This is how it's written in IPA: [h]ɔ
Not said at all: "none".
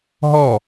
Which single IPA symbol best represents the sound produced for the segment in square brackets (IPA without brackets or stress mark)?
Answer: ɦ